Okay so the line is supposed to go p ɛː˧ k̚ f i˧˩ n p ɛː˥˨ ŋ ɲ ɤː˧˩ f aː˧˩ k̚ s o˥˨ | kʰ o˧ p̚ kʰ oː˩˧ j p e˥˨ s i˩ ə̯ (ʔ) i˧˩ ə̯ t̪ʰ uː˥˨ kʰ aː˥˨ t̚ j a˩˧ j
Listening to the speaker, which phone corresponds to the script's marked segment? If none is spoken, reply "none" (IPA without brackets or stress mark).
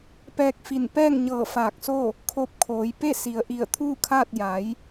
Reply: ʔ